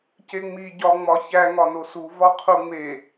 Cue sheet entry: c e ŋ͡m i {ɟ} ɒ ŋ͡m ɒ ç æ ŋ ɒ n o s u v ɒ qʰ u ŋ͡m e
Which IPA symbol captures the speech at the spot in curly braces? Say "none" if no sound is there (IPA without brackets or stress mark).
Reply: ɟ